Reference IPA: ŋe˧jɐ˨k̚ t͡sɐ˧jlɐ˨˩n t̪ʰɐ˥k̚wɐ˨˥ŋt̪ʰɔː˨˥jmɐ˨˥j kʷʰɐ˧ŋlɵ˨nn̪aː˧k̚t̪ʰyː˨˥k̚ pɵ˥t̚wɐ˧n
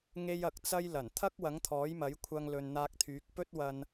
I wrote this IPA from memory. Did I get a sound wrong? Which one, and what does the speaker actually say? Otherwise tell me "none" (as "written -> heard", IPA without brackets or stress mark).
none